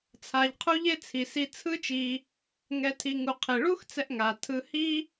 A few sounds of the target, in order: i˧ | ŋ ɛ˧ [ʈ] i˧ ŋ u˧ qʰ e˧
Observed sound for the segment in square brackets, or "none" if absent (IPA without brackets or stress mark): tʰ